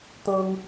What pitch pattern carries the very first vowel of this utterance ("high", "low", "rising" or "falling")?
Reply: high